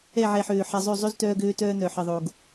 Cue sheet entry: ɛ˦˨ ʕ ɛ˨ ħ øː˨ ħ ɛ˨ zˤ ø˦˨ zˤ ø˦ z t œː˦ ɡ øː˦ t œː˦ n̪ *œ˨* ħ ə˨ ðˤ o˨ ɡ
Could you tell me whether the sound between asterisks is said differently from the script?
no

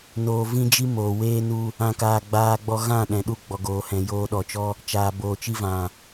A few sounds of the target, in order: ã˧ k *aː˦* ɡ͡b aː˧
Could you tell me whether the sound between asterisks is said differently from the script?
yes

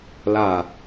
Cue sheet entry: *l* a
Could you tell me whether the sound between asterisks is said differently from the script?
no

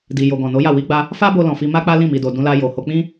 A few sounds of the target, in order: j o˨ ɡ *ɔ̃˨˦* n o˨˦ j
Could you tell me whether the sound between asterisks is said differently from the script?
yes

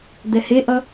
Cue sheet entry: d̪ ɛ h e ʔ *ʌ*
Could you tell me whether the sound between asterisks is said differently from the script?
no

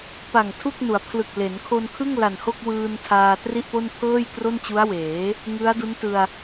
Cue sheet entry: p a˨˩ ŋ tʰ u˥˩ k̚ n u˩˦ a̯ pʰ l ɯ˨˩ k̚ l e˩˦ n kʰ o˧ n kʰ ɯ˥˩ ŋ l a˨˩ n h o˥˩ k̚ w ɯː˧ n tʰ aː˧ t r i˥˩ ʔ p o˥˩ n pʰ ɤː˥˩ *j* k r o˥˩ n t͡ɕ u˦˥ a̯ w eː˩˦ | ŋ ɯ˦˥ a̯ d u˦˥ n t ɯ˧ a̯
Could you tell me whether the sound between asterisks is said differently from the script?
no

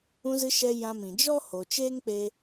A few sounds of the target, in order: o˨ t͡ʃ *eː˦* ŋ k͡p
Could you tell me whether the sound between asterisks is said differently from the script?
no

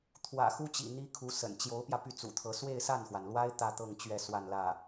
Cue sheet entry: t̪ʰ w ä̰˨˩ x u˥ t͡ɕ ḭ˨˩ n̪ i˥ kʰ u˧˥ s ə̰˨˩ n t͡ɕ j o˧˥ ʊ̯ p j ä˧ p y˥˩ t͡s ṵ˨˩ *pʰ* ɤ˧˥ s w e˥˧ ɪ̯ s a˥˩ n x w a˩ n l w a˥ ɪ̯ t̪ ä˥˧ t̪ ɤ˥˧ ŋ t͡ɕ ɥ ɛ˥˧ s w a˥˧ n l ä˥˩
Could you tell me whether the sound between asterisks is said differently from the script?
yes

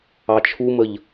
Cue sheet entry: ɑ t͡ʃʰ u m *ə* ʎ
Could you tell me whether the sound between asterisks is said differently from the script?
no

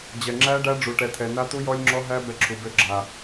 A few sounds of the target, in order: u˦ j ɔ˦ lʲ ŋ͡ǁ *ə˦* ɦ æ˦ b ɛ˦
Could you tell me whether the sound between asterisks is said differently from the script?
yes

